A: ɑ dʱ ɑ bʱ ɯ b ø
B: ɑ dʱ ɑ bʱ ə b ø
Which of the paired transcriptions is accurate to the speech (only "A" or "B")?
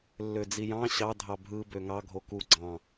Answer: A